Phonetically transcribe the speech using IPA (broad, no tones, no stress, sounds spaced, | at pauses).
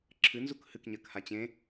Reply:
ǁʰ ɨ n z u k h ɨ k ɲ ɜ k h a t͡ɕ ẽ